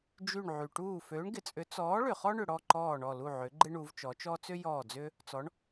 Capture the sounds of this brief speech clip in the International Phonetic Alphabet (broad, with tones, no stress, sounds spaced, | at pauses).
d͡ʒ y˧˩ ɳ ʕ y˩ ʈ uː˧˩ f øː˨˥ ɳ ɡ ɪ˩˧ t͡sʼ ʏ˨˥ t͡s ɔː˨˥ ɭ ʏ˩ χ ɔ˦ ɳ ʏ˩ ɽ ɔ˧˩ ǃ ɔː˧˩ ɳ ɔ˧˩ l u˧˩ ʕ ʏ˩˧ ɡ͡ǃ ɪ˦ ɳ u˩˧ v t͡ʃ ɔ˩˧ t͡ʃ ɔ˦ t͡s ʏ˦ j ɔː˧˩ d͡z ʏː˦ | t͡s ɔ˩˧ ɳ